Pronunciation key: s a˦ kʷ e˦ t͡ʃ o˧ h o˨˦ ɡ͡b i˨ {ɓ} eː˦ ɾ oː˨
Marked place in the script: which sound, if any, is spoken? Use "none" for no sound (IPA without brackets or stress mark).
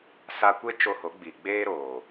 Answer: ɡ͡b